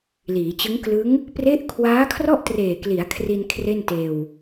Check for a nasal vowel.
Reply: absent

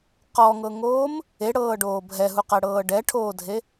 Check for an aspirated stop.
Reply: present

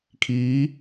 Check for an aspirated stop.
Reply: present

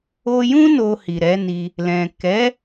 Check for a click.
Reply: absent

